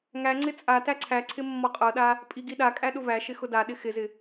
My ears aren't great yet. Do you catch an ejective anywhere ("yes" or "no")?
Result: yes